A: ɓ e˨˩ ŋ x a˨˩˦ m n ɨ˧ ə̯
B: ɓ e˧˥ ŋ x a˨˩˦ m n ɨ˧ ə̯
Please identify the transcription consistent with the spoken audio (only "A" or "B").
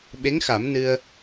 B